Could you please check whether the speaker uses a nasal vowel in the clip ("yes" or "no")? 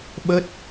no